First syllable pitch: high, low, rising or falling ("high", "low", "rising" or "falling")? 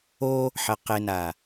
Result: high